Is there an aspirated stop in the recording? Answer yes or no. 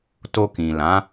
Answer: no